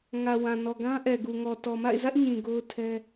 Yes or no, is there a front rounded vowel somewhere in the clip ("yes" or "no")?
no